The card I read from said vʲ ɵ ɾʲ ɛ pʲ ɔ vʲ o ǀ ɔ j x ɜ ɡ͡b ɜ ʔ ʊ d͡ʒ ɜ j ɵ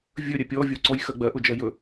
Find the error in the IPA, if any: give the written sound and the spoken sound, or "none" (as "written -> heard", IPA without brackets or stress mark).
none